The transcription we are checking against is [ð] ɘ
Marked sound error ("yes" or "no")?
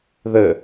no